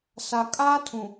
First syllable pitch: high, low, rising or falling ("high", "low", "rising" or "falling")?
low